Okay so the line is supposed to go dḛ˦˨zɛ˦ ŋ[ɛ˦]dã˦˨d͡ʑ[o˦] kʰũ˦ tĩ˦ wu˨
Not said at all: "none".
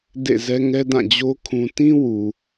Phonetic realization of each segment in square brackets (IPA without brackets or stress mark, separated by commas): ɛ˦, o˦